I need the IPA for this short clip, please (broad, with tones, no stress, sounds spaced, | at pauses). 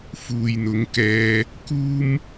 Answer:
f uː˨ j n̪ ʊ˨˧ ŋ k ɛː˧ | k uː˥ m